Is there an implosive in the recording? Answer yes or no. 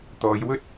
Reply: no